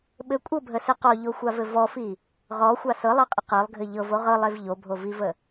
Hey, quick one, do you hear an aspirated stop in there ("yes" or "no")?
no